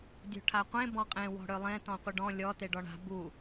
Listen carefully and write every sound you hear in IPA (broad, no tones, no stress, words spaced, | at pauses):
dʲo̤ʈʰaqʷẽ bɔ̃qʼẽ wɔ̤ɽølˠẽ tɔ̃qʷɪɖɔ̃ lʲɔ teɖɔɳa̤ bu